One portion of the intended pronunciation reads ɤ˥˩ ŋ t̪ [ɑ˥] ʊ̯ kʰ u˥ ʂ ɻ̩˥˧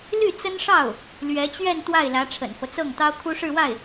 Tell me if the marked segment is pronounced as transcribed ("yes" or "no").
yes